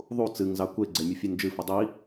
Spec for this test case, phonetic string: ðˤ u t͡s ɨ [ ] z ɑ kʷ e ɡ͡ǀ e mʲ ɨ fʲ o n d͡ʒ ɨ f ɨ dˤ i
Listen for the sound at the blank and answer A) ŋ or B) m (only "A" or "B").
A